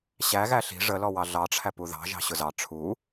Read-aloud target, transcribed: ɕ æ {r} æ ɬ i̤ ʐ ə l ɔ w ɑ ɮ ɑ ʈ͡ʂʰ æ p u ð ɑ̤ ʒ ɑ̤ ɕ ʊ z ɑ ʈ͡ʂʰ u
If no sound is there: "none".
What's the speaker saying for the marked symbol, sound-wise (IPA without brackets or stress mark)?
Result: ɣ